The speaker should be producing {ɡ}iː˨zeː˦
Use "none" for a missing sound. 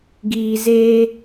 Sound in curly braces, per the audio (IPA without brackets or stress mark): ɡ